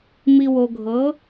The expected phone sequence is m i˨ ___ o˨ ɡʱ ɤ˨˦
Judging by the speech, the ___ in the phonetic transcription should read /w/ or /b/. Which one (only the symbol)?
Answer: w